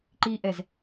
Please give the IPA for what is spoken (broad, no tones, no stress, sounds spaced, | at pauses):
ǃ i ʔ ɛ z